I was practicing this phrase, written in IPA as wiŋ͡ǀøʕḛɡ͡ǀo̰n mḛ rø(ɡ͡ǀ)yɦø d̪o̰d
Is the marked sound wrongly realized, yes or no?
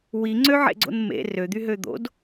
yes